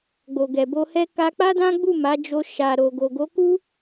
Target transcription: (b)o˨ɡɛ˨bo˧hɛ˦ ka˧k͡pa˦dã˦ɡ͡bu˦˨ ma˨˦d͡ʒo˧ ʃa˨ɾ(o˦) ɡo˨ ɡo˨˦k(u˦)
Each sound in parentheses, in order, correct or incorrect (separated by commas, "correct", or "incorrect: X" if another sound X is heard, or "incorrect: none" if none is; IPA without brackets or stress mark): incorrect: ɡ͡b, incorrect: o˨, correct